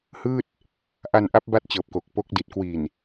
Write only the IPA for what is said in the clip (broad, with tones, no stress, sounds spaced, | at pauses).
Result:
h ɯː˥˩ t̚ | ʔ a˧ n ʔ a˦˥ p̚ b a˦˥ t̚ t͡ɕ ɤː˨˩ p̚ k o˨˩ k̚ p o˦˥ k̚ d i˨˩ t̚ k w i˨˩ n